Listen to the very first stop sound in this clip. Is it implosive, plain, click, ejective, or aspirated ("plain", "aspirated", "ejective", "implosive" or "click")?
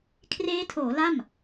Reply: aspirated